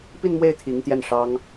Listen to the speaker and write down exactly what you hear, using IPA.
pi˥˧nmwe˥˩ɪ̯ t̪ʰi˧˥ŋ t̪jɛ˥˩nʂɑ˥ŋ

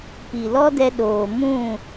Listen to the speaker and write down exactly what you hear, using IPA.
pi˨lɔ˦dɛ˧ ɗoː˨ mũ˦˨

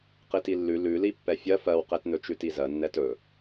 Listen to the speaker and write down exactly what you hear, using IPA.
qitilːʉ lʉli pːɛfʲɜ fɜwqetnɵ t͡ʃʉtizɜ nːɛtɵ

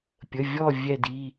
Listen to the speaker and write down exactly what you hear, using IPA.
pʲə˩˧˩vʲɔ˦˨ vʲɛ˦˨di˩˧˩

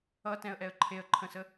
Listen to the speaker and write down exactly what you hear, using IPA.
ʌtɛ̃ə̯ʔɛə̯ ǃʰeə̯ǃʰə̃sə

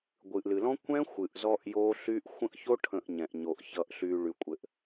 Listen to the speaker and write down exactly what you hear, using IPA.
ɡʷɨ˨ʔlɨ˨lɔ̃˦ kʷɛ̃˦ xʷɨ˨ʔ zɔ˦ʔjo˦ɬy˦ʔ xʷə̃˦ʔço˦ ʈʰə̃˨ʔ ɲɛ̃˨ʔ ɲo˨ʔ çʌ˨ʔɬy˨ ɭy˨kʷʼɘ˨ʔ

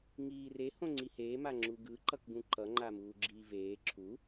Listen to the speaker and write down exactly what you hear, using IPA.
ŋiːre hõŋ͡ǀiheː maŋ͡ǁuɡɯ ǃʌkɡũǃʌ ŋ͡ǃamuːɡ͡ǁiːveː ǁʰu

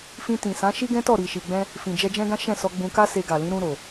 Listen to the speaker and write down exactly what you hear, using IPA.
fĩ˧tĩ˨sã˨˦ ʃi˦ɡɛ̃˦ tɔ˦˨ɾi˨ʃi˨ɡ͡bɛ̃˧ | fĩ˨d͡ʒɛ˧d͡ʒɛ̃˦ɡã˦ ʃɛ̃˦˨sɔ˧ ɡ͡bũ˧ka˦ se˧ɡa˨lĩ˨˦ ɾũ˧ɾo˨

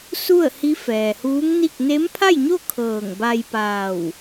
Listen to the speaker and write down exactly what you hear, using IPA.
su˥˨ə̯hi˧˥ fɛː˩huː˧˥ŋni˥˨k̚ ne˧˥mpʰa˥˨jɲo˥˨ kʰɤː˧˩ŋba˧jpaː˧˩w

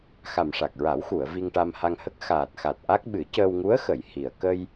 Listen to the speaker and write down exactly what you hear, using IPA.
xa˨˩mʂa˨˩k̚ɹa˨˩˦wxu˨˩˨ə̯ vi˧ŋʈa˧mha˧ŋhə˦˥k̚ xaː˨˩t̚xa˨˩t̚ʔa˦˥k̚ ɓɨ˨˩˦cəː˧wŋu˧˥ə̯xə˨˩˨j hi˨˩ə̯ kə˧j

